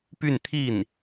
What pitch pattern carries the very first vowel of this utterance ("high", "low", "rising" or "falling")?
falling